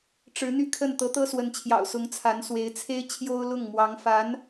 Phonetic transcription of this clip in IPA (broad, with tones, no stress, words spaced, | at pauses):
ʈ͡ʂɻ̩˧˥n̪y˥˧kʰə˥˩n t̪ɤ˧˥t̪ɤ˥swə˧˥nt͡ɕʰjɑ̰˨˩ʊ̯ sʊ˧˥ŋt͡sʰa˧˥nswe˧˥ɪ̯ t͡sʰe˥ɪ̯ t͡ɕʰjo˥ʊ̯lʊ˥˩ŋmwɑ˧˥ŋfa˧˥n